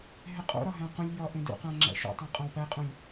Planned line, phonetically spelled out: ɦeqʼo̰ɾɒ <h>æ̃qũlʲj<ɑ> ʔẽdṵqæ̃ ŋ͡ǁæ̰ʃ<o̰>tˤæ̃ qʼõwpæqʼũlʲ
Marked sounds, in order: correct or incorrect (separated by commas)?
incorrect, incorrect, incorrect